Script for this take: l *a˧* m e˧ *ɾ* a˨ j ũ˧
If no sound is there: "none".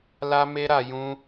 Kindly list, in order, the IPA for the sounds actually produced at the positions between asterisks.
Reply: a˧, ɾ

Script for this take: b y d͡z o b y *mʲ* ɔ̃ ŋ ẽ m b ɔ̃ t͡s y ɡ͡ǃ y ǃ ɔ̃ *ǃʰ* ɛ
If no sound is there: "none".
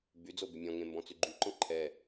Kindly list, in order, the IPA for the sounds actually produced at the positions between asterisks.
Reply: mʲ, ǃʰ

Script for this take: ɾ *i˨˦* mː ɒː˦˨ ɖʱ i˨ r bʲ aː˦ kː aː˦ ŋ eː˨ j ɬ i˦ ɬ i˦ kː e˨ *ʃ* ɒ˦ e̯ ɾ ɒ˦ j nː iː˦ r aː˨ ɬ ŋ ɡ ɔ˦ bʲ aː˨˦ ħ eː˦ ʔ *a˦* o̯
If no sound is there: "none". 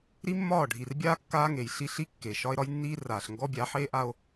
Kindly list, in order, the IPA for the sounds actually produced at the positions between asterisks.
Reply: i˦, ʃ, a˦

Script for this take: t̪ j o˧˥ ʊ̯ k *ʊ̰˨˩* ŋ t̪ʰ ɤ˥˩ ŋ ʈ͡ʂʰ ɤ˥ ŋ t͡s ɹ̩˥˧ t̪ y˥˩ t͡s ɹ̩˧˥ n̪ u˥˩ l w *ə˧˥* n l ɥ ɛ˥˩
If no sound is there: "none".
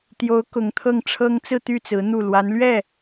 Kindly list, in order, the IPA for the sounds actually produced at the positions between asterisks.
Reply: ʊ˧˥, a˧˥

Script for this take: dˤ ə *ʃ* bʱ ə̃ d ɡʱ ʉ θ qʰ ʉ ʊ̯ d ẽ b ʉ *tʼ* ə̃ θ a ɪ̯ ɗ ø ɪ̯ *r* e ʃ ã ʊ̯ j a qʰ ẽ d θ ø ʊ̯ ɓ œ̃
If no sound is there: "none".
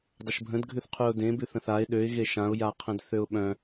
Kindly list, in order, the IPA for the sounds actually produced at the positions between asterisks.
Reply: ʃ, θ, ɣ

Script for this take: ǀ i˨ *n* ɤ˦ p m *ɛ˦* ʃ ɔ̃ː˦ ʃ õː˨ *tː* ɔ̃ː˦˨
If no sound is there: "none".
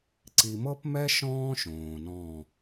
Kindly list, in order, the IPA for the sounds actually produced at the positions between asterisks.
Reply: m, ɛ˦, n

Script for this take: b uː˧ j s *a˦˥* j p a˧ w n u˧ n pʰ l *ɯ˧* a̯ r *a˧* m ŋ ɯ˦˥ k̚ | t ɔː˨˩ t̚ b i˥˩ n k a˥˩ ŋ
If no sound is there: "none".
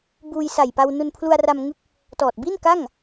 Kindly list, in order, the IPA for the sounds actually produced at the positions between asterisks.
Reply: a˨˩, u˧, a˧

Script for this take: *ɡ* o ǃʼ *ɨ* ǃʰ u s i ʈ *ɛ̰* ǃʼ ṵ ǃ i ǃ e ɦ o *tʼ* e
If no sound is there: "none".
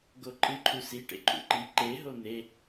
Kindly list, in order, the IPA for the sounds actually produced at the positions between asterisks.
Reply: ɡ, ɨ, ḛ, n̪

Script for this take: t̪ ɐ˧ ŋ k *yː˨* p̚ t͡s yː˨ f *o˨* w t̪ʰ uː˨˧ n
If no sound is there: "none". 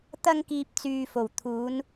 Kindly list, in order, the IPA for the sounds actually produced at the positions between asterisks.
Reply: iː˨, o˨˩

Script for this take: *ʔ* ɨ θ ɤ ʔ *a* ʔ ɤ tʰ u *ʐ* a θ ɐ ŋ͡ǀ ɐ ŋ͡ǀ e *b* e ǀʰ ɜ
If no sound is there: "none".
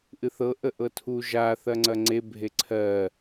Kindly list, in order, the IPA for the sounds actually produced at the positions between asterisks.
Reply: ʔ, ə, ʒ, bʱ

